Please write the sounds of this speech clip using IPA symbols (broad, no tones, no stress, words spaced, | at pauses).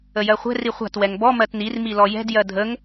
əjɜχʷɛ̤r iχʷa̤t wɛŋbɔ mɜtnir milɔjɛ̤d jɜdʱəŋ